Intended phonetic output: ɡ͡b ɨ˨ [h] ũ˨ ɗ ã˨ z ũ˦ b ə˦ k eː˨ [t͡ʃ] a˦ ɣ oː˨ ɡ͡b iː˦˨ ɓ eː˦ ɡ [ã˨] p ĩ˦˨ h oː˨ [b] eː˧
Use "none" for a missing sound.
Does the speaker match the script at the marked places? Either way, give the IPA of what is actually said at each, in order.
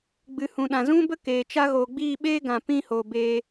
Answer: h, t͡ʃ, ã˨, b

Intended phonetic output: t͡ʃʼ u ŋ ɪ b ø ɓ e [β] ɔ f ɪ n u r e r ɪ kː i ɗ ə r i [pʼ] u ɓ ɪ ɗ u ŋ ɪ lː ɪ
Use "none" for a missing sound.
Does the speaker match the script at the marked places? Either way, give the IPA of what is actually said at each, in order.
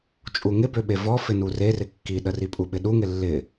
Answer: v, pʼ

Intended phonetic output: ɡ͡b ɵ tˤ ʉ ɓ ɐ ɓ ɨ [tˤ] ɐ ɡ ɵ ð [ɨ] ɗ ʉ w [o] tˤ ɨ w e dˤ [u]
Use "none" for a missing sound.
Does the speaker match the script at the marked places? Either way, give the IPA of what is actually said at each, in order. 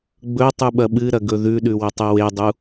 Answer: ɾ, ʉ, o, u

